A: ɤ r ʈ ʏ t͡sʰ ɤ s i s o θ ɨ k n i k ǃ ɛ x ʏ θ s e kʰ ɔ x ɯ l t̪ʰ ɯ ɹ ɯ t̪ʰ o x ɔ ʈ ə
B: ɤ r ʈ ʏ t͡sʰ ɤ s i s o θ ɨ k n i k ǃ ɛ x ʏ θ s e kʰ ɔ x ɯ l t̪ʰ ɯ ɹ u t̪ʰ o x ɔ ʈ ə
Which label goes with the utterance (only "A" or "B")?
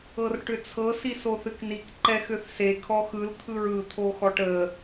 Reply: A